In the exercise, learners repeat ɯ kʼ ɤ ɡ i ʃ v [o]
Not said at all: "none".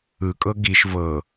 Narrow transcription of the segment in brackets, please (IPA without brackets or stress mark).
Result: ɤ